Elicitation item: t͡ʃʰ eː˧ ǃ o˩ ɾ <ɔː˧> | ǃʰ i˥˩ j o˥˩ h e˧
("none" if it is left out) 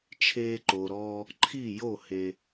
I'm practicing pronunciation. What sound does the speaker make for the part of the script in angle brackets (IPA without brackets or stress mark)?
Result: ɔː˧